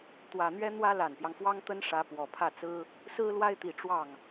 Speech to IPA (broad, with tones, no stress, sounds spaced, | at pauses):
t̪ w ä˨˩ n̪ ɥ ɛ˥ n̪ w ä˥ l a˨˩ n p j ɑ˦ ŋ f w ɑ˥ ŋ t̪ ə˥ n ʂ ä˧˥ p w ɔ˨˩ pʰ ä˥˩ t͡s ɹ̩˥ | s ɹ̩˥ l w a˥ ɪ̯ t̪ i˨˩ ʈ͡ʂ w ɑ˥˩ ŋ